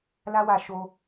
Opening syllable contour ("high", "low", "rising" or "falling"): high